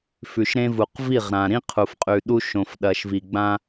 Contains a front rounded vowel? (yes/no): no